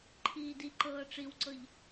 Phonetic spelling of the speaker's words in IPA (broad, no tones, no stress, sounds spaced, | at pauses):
ǃʰ iː d i ǃ ɤː ʈ͡ʂ i w ǀ ɤ ʎ